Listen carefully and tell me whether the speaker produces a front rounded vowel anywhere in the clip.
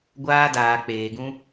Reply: no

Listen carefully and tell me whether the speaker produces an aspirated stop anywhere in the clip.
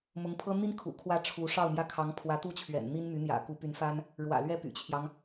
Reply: yes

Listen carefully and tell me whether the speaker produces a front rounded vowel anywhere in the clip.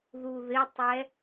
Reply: no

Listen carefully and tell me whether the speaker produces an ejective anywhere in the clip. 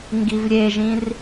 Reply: no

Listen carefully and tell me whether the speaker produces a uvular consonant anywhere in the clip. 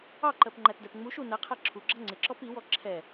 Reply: yes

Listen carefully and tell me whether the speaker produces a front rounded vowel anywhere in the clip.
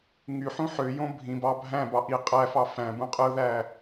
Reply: yes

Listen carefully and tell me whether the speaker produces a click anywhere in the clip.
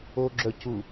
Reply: yes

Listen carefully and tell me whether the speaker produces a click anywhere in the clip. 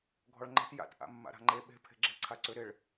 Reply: yes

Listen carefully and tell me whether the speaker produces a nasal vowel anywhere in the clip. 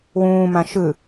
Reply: yes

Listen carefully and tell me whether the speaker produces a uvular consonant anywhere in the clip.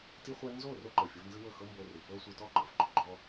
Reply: yes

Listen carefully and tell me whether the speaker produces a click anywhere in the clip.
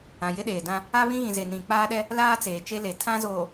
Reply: no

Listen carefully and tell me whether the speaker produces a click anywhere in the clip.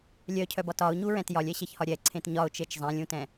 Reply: yes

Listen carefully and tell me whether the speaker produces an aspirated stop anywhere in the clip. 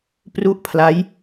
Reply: yes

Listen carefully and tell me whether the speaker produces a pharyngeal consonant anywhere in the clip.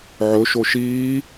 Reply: yes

